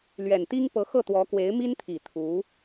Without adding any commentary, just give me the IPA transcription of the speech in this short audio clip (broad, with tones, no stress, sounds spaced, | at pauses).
l ɥ ɛ˨˩ n t̪ i˥ ŋ p ɤ˧˥ x ɤ˥˩ t̪ w ɔ˧˥ k w e˧˥ ɪ̯ m i˥ n t̪ʰ i˨˩ t̪ʰ u˧˥